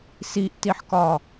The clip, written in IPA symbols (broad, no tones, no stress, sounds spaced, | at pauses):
s i ʔ t i ħ k ɒ